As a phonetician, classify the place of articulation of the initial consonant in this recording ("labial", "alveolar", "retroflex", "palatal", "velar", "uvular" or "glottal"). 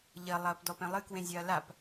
palatal